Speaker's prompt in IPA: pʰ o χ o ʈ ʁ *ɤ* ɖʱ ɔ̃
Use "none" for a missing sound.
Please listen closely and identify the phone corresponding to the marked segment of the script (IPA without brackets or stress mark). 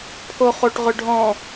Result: ɵ